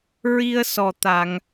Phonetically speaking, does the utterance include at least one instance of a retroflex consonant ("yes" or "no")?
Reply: no